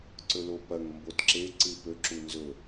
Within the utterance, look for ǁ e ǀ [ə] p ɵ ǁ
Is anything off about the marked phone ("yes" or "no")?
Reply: yes